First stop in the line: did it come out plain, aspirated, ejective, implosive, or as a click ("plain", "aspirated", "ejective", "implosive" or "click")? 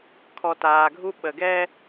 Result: aspirated